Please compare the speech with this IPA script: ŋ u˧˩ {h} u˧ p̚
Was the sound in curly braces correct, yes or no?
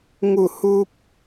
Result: yes